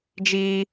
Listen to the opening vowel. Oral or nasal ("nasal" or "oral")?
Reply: oral